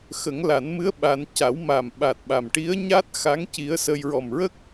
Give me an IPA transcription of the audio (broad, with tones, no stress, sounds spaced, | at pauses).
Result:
x ə˨˩˦ ŋ l a˨˩˦ n m ɨ˧˥ ə̯ ɓ a˧ n c a˨˩˦ w m a˨˩ m ɓ a˨˩ t̚ ɓ a˨˩ m ʈ i˧˥ ə̯ ɲ a˦˥ t̚ x a˧˥ ŋ c i˧˥ ə̯ s ə˧ j ɹ ɔ˨˩ m ɹ ə˦˥ k̚